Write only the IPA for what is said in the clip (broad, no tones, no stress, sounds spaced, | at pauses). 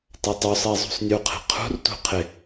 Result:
t a tˤ u sˤ e zˤ ṳ sˤ nʲ u qʰ ɛ̤ qʰ ṳ r t ṳ qʰ ɪ